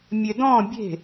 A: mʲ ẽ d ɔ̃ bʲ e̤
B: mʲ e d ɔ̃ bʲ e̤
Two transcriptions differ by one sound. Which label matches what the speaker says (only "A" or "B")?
B